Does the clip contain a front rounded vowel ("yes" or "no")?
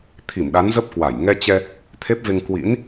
no